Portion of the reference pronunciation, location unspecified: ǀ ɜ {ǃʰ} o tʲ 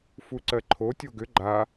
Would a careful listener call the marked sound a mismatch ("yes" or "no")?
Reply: no